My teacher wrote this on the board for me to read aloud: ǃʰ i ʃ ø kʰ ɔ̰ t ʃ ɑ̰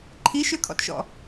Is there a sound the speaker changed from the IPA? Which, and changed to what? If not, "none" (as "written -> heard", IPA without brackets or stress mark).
ɑ̰ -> ɔ̰